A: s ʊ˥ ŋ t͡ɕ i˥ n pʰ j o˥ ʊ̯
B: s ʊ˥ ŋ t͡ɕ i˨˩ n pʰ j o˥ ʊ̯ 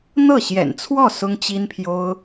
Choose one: A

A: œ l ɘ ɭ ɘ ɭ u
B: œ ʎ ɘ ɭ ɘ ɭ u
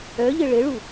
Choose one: B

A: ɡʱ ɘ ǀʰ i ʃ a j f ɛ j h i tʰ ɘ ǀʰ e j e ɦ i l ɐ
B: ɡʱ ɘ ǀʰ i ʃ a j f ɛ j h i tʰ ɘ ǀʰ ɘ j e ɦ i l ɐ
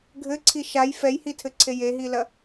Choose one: A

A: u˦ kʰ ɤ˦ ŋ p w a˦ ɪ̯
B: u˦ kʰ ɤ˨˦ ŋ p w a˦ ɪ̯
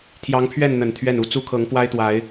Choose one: B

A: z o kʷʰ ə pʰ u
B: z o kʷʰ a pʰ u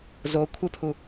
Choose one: A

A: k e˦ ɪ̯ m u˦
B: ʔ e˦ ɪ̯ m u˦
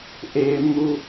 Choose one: B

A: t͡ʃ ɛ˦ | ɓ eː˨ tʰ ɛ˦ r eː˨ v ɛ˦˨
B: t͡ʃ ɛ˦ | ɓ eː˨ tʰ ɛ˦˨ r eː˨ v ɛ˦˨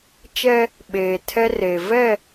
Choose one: A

